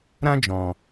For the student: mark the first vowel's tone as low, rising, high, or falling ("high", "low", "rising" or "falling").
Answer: high